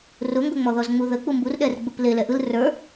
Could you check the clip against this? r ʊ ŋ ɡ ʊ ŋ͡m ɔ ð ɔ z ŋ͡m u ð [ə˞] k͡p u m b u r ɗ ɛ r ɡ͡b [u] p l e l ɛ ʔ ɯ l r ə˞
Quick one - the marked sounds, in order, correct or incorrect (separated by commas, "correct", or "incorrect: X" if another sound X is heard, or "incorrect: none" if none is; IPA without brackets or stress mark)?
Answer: incorrect: ə, incorrect: ɯ